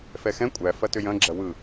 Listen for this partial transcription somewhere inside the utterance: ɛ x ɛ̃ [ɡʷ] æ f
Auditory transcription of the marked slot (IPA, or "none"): kʷʼ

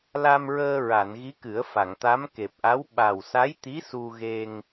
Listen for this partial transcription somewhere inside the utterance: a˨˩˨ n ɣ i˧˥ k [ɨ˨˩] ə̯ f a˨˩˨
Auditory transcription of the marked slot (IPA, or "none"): ɨ˨˩˦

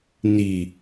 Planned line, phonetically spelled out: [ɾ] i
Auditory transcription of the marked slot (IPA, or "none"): n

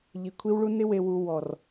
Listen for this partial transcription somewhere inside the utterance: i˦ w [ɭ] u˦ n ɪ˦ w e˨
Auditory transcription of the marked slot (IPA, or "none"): ɭ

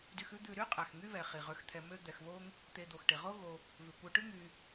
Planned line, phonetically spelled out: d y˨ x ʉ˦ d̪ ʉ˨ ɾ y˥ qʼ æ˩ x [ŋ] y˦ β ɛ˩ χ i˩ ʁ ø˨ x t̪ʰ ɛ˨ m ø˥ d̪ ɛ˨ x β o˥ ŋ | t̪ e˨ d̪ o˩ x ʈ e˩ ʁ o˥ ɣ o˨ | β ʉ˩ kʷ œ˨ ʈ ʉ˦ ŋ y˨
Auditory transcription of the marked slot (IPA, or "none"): ŋ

